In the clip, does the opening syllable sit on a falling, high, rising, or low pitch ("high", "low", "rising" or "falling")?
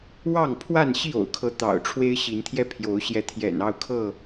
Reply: falling